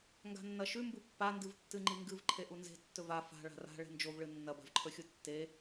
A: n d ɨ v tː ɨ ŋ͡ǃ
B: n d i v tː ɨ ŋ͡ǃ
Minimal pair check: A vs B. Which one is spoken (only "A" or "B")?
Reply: A